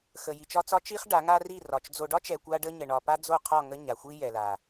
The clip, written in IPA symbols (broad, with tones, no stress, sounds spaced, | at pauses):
x ə˨ j i˨ t͡ʃ ɒ˦ t͡s ɒ˦ t͡ʃ i˦ χ ɖ a˨˦ ŋ a˦ r i˦˨ r ɒ˨ t͡ʃ d͡z o˨ ɖ ɒ˦ t͡ʃ ɛ˨ kʷ a˦ ɖ ə˦ ɲ ə˨ ɳ ɒ˨ p a˦ d͡z o˦˨ qʰ ɒ˦˨ ŋ ə˦ ɲ a˨ xʷ i˦ j ɛ˨ l a˨